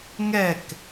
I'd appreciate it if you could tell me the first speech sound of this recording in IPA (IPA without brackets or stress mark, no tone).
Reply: ŋ